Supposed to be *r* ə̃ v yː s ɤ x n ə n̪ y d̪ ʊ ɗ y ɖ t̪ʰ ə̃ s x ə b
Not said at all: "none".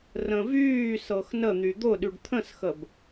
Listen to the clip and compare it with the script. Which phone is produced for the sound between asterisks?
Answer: r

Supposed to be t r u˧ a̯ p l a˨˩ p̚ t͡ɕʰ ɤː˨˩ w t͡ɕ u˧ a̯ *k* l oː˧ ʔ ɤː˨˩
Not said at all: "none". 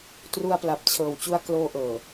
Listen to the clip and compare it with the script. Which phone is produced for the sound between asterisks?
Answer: k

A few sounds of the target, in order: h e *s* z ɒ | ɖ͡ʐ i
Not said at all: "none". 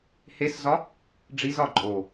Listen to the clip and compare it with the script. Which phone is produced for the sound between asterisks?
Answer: s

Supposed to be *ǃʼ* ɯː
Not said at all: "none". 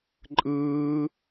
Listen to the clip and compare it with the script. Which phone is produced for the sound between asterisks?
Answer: ǃʼ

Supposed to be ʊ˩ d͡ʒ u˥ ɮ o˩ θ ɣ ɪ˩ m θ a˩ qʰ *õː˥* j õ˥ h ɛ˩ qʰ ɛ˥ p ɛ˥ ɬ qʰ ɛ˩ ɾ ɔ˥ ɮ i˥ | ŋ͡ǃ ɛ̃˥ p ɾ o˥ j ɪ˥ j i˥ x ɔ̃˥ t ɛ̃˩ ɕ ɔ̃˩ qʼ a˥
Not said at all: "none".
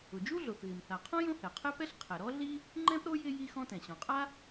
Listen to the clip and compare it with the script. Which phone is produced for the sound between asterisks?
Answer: õ˥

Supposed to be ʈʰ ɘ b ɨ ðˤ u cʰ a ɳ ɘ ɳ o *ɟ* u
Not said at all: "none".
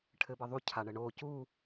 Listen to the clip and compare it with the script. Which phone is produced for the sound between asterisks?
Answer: c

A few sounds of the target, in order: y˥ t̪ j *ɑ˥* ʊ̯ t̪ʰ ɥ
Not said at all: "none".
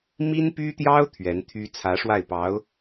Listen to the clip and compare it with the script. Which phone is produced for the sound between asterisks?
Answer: ɑ˥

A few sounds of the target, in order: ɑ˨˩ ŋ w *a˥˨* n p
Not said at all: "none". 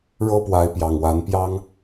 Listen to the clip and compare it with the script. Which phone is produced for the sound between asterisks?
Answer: a˨˦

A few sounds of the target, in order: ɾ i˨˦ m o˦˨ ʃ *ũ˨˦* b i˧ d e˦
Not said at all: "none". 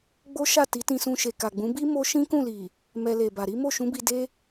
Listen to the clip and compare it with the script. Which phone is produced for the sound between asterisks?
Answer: ũ˨˦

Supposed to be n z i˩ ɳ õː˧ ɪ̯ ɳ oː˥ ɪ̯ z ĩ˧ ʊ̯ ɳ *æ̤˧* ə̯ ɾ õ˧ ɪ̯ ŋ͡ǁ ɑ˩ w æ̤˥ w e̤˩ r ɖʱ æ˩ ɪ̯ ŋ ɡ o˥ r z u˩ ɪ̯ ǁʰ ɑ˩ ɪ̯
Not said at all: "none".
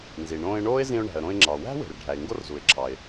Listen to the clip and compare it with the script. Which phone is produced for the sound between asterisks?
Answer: æ̤˩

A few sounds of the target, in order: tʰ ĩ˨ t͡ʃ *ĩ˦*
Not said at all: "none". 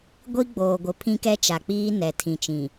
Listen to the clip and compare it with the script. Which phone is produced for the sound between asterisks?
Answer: ĩ˨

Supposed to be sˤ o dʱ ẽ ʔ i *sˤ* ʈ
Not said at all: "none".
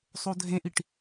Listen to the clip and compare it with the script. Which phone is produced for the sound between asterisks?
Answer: none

